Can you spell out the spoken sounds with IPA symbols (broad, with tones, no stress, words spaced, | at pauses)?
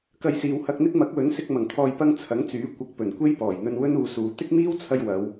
kɐ˧jsiː˨whɐ˧k̚n̪ɪ˥k̚ mɐ˨˥k̚wɵ˨˥nsɪ˧k̚ mɐ˨˩ŋt̪ʰɔː˨jpɐ˧ŋ t͡sʰɐ˨˥ŋt͡syː˨˥ kʷɐ˨k̚pɵ˨˩n kʷe˥jpɔː˨˩jn̪ɵ˧n wɵ˥nuː˨suː˨˧ t̪ɪ˥k̚miː˥wt͡sʰɐ˧j wɐ˨˧w